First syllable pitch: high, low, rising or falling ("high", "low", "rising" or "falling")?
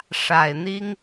low